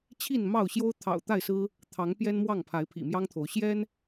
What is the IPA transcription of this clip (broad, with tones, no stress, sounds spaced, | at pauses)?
t͡ɕʰ i˥˨ n m ɑ˥˨ ʊ̯ ɕ j o˦ ʊ̯ t̪ʰ ɑ̰˨˩ ʊ̯ t̪ a˥˨ ɪ̯ s ɹ̩˦ | t̪ʰ ɑ˨˦ ŋ p j ɛ˦ n m w ɑ˥˨ ŋ pʰ a˨˦ ɪ̯ pʰ ḭ˨˩ m j ɑ˦ ŋ t̪ʰ o˨˦ ʊ̯ ɕ j ɛ˦ n